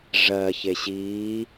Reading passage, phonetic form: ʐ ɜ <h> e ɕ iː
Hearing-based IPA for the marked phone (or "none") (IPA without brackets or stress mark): ç